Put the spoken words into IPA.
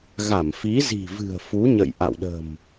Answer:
ɣ a˧˩ m f i˨˦ z i̤˨˩ v ɨ̤˨˩ ə̯ f u˨˦ ɲ ə̰˧˨ j ʔ a̰˧˨ w ɗ ə̤˨˩ m

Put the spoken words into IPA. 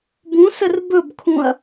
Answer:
b ũ s ə r b ɵ b kʰ ũ ɐ̯

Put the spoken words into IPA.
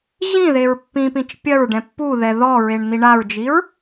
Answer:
ʑ ĩ ð e ɹ pː ĩ p ĩ t͡ʃ pʲ ɐ ɹ ɖ ɛ̃ pː u ð ɛ ð ɔ ɹ e ɳ n̪ i ɳ a ɹ d͡ʒ i ɹ

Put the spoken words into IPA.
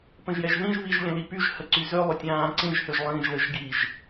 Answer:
p ə̃ ʒ j ɛ ʒ ð ĩ ʒ β i ʒ lʲ ə̃ l i p y ʒ h ə ǀ y z ʏ lˠ ʏ tʲ ãː ǀ ĩ ʒ h ʏ ʒ lˠ ĩː ʒ l ə ʒ ɡ i ʒ

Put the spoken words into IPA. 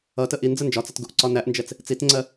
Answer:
ʌ t ə ʔ i n d͡z ə n d͡ʒ ɒ t͡s ʌ t ɡ u ʔ ǀ ɒ n æ ʔ n d͡ʒ ɛ t͡s | t͡s i t ŋ͡ǀ ɜ

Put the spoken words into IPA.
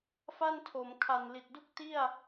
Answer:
f a˥˩ n tʰ o˩˦ m kʰ a˨˩ n l i˨˩ t̚ d u˥˩ k̚ t i˥˩ a̯

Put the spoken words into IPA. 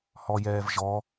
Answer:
h ɔ j ɛː v ʒ ɔ

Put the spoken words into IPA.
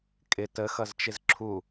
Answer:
kʼ ɪ t ə x ʌ z t͡ʃ ɪ z ǁʰ u

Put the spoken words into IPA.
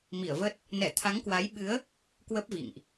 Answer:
m i˧˩ ə̯ v əː˦˥ t̚ | n ɛ˧˩ t̪ʰ a˨˦ ŋ k w a˨˦ j ɓ ɨ˨˦ ə̯ | k w ə˦˥ p̚ v ḭ˧˨ ŋ ʔ

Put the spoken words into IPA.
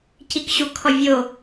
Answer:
c i k ɕ u kʰ ɔ vʲ o

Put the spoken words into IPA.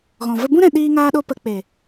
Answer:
ɣ ɔ̃˨ v ə˧ b ũ˦ ɾ ɛ̃˧ ɗ iː˦ ŋ aː˦ ɗ o˦ p ə˧ k͡p e˨

